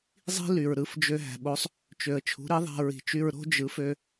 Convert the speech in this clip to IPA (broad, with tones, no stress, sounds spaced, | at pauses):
zˤ i̤˥ l y˩ ɹ ɾ ɯ˩˥ f d͡ʒ ø˧ ɦ æ̤˩ ɓ o˩˥ sˤ | t͡ʃ ø˩ ə̯ t͡ʃʰ ṳ˩˥ ɾ i˩˥ ðˤ æ̤˧ ɹ i̤˩ t͡ʃ y˧ ɹ ɾ o̤˥ d͡ʒ ɯ˩˥ f ø˧